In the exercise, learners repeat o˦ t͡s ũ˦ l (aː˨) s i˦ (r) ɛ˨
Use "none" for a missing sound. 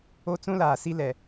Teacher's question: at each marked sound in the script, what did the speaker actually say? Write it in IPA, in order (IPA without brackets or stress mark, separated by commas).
aː˨, l